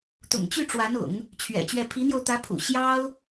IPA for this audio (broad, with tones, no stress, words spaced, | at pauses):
t̪ʊ̰˨˩ŋt͡ɕy˥˩ʈ͡ʂwa˧˥nʊ̰˨˩˦ŋ | t͡ɕʰɥɛ̰˨˩t͡ɕɥɛ˥˩ pʰi˧˥n̪jo˧ʊ̯ t̪ä˧˥pʰṵ˨˩ ɕjɑ˥ʊ̯